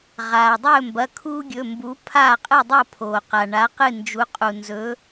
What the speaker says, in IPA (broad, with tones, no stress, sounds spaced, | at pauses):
ʁ aː˩ dˤ ɵː˥˨ m b ɐ˩˧˩ kʰ uː˦ ɡʲ ɵ˩˧˩ m b u˨˥ pʰ aː˥˨ qʼ ɨ˥˨ dˤ o˥˨ pʰ oː˩ q a˩ ɳ a˨˥ q ɨ˥˨ n d͡ʒ u˨˥ qʼ u˩ n z ɵ˨˥